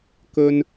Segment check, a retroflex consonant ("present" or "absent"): absent